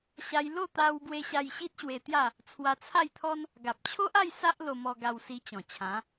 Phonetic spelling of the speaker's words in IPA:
ɕ a˧ j l o˥˧ t̪ a˦ w b w e˦ ɕ a˧ j ɕ i˦ t̚ ɕ w e˧ t̪ j a˥˧ | t͡sʰ w a˧ t͡sʰ a˥˧ j t̪ʰ ɔ˦ n | ɡ a˨ p̚ t͡ɕʰ o˦ ʔ a˥˧ j s a˦ ʔ l o˧ m ɔ˧ ɡ a˧ w s i˧ t͡ɕ ɔ̃˨˩ t͡ɕʰ ã˨˦

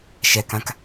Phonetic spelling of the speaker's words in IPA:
ʃ ɛ k ã k

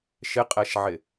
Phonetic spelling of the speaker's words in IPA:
ʃ ɪ qʼ ɛ ʃ ʕ ɪ

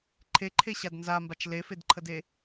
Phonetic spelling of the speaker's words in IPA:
ǃʰ e ǃʰ e ɕ a d n z a m b a t͡ʃ l e f e d ǃʰ ə d e

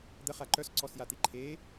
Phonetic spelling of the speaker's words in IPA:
d̪ ə χ a ǃ œ s ǀ ɔ s j a t̪ i ǃʰ e

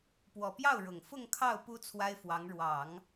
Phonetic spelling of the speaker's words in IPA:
p w ɔ˨˩ p j ɑ˥˩ ʊ̯ ɻ ʊ˨˩ ŋ f ʊ˥˧ ŋ kʰ ɑ˥˩ ʊ̯ p u˥ t͡sʰ w a˥ ɪ̯ f w ɑ˧˥ ŋ ɻ w ɑ˨˩˦ ŋ

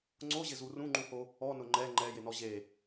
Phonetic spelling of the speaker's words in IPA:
ŋ͡ǀ o ʑ ɪ z u r ũ ŋ͡ǃ ũ h o | ɔ n ʊ ŋ͡ǃ ɛ ŋ͡ǃ ɛ j ɪ n ɔ ʑ e

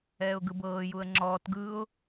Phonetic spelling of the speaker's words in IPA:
ɛː ʊ̯ ɡ ɯ b ɤː j u ə̯ ŋ͡ǁ ɔː t ɡ ɯ ʊ̯

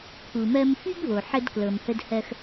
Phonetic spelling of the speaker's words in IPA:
pʰ u˨ m ɜ˦ m f y˦ ɡ β o˨ ħ ə˦ d k l ɤ˨ m h ə˦ d h ɜ˦ x

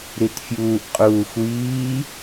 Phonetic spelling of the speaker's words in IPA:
ɾ i t fʲ uː ʔ qʼ uː xʷ iː

